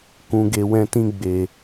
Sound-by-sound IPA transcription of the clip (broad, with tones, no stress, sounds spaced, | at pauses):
k ũ˧ ɡ e˧ w ɛ̃˦ t ĩ˦ ɡ͡b e˨